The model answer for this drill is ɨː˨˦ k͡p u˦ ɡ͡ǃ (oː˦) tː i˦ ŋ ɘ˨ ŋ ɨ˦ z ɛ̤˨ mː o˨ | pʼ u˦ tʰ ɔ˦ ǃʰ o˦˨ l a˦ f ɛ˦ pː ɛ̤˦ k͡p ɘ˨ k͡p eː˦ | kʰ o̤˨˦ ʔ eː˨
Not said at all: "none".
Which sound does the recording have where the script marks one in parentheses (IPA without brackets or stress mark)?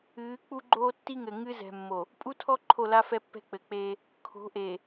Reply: oː˦